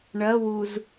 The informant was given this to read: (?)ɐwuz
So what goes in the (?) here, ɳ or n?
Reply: ɳ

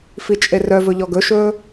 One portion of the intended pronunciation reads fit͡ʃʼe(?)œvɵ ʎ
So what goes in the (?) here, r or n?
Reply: r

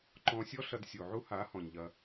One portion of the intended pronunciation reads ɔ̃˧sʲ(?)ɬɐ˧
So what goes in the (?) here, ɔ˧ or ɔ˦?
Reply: ɔ˦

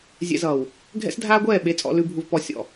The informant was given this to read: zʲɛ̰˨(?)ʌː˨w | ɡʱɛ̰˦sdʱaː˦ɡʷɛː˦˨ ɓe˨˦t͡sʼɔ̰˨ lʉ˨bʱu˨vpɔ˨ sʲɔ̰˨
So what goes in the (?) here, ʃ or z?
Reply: z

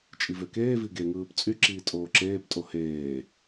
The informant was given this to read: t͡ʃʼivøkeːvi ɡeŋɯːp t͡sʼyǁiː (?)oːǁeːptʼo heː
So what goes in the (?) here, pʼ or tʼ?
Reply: tʼ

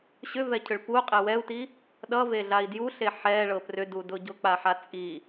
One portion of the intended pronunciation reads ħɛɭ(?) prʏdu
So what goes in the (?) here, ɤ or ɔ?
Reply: ɤ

